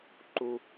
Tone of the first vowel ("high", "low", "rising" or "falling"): high